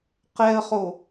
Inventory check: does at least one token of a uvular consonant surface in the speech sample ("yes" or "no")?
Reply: yes